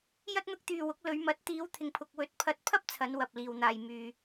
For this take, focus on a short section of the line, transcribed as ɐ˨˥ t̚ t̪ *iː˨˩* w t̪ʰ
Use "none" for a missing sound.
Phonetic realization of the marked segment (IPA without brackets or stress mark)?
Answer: iː˨˧